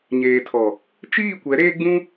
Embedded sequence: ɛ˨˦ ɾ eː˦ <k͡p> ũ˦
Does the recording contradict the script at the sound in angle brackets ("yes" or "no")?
yes